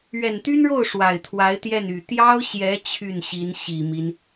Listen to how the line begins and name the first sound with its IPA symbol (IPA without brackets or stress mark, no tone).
ɥ